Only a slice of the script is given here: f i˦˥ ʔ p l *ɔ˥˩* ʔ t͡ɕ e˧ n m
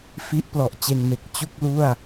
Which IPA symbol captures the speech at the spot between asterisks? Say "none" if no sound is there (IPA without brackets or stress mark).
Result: ɔ˨˩